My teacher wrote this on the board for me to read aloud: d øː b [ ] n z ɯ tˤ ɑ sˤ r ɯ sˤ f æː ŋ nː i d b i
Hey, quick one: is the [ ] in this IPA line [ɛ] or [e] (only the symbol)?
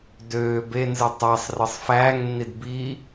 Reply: e